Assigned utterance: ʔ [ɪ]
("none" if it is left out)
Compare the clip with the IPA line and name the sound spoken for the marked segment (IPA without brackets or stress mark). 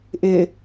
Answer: ɪ